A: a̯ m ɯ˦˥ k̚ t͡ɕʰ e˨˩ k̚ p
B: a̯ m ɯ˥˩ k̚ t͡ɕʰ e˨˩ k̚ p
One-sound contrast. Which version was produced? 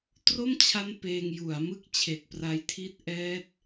B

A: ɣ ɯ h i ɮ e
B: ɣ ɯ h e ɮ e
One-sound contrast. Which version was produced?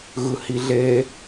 A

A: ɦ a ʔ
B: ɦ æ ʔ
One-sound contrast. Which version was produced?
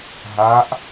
A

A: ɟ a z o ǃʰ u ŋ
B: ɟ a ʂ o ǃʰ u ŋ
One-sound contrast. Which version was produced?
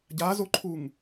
A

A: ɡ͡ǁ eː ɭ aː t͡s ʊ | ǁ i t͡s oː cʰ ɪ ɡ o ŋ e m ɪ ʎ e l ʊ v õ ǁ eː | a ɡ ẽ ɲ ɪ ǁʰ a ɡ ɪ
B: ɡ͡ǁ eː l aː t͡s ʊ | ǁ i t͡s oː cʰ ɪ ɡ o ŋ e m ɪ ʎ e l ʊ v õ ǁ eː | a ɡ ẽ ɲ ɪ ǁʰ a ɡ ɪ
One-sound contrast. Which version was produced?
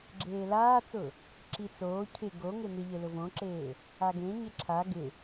B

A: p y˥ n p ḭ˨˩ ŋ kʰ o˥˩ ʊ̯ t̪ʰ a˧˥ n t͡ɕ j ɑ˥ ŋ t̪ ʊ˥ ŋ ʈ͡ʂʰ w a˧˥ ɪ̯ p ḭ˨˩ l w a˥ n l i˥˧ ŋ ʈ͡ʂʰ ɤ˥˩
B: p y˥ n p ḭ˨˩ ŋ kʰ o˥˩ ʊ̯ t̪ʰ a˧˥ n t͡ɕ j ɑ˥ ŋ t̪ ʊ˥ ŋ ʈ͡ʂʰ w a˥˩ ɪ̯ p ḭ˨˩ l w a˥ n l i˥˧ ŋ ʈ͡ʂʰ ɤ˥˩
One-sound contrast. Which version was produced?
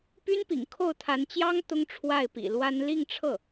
B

